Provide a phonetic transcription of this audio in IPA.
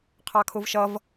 qʰ ɑ kʰ ʊ v ʃ ʌ v

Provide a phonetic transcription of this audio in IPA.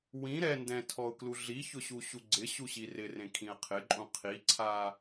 w ĩ ɾ ɛ n d ɛ̃ tʰ ɔ ʊ̯ k l u ɮ i ç ʊ ɕ u ɕ u ɡ͡ǀ ɪ ɕ u ɕ i r ɪ r ẽ kʰ ĩ ə̯ qʰ ɪ ǃʼ ũ qʰ i ǀʰ a

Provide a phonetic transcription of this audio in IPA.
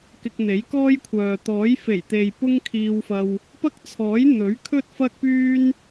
k ɪ˧ k̚ n̪ e˨˥ j k ɔː˥ j kʷʰ œː˨ t̪ ɔː˨˥ j f e˨˩ j t̪ e˨ j p ʊ˥ ŋ kʰ iː˧ w f ɐ˧ w | p ɐ˥ k̚ t͡sʰ ɔː˨˥ j n̪ ɵ˨˥ ɥ kʰ ɵ˥ t̚ f ɐ˥ k̚ p yː˥ n

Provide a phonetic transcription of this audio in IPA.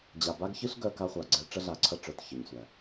d͡ʑ a˨ b a˦ ɡ ç ɨ˦ ɬ ɡ œ˦ k a˦ χʷ a˨ ɡ͡ǀ ɛ˦ ʈ͡ʂ ə˦ ɮ a˨ ǀʰ ɐ˦ ʈ͡ʂ œ˨ t ç ə˨ ɲ sʷ æ˨

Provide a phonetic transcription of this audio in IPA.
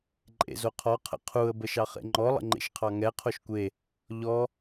ǃʼ ḛ z o qʰ ɔ qʰ ə̰ qʰ u ə̯ b ə ʃ ɑ χ ḛ ŋ͡ǃ ɔ lˠ ə̰ ŋ͡ǃ ḛ ʃ qʰ ɑ ŋ ɛ qʰ o ʃ kʷ e | ʎ ɔ

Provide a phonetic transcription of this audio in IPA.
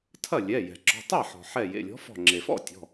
tʰ ɐ˥˩ lʲ ɛ˩˧˩ j ɛ̤˩ ǁ ɔ̤˩˧˩ tˤ ɛ˥˩ ħ ɔ̤˩ ħ ɛ˧˩ j ḛ˩˧˩ lʲ ɔ̤˨˥ f ɔ̤˧˩ ŋ͡ǁ e˩ f ɔ̰˥˩ tʲ ɔ̤˩˧˩

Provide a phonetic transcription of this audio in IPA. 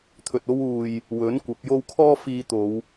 t̪ʰ ɵ˧ t̚ o˥ w uː˧ j | w ɵ˨˥ n kʷ ɐ˨˥ p̚ j o˥ w kʰ ɔː˥ f iː˧ t̪ o˨˧ w

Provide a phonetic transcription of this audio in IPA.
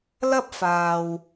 l ɐ˥ p̚ f aː˨ w

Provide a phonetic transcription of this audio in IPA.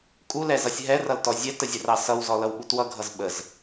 kʼ u l ɛ z ʌ sʲ ɦ ɛ r ʌ l t ɔ zʲ æ t ə zʲ ə r ɑ s ʌ w z ɔ l ʌ w ɓ u t w ʌ ɡʱ ʌ z ɓ ə z

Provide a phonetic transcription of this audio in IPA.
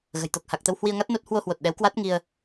ɣ ə̤˨˩ j t̪ o˨˩ k̚ h a˨˩ k̚ t̪ ə˧ w h w i˧ ə̯ ŋ a˦˥ t̚ n o˦˥ t̚ h w o˧ h w o˨˩ t̚ ɗ ɛ˨˦ w k w a˦˥ t̚ ŋ i˧ ə̯

